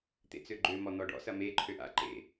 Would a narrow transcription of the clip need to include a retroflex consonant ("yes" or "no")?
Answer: yes